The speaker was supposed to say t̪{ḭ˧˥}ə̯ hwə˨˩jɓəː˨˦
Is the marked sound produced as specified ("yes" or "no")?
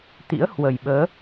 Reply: yes